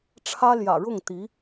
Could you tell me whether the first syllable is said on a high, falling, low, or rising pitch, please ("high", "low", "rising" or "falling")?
high